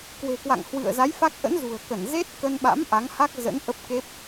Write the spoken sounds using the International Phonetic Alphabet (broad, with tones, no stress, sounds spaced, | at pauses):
k w e̤˨˩ k w a̰˧˨ ŋ h w ɨ̰˧˨ ə̯ z a˨˦ j f a˦˥ k̚ ʔ ə̰˧˥ n z ṳ˨˩ ə̯ k ə˧˩ n z e˦˥ t̚ k ə˧ n ɓ a̰˧˥ m ʔ a˨˦ ŋ h a˦˥ k̚ z ə̰˧˥ n ʔ ə˦˥ p̚ k e˦˥ p̚